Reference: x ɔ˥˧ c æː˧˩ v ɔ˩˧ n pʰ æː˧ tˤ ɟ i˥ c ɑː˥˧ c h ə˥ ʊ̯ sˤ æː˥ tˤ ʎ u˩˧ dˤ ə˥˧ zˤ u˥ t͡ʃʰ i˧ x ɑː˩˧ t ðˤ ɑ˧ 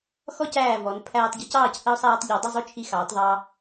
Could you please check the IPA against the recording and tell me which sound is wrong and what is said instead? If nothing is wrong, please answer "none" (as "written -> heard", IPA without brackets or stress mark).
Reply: none